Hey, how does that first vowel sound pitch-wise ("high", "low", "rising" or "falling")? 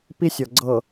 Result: high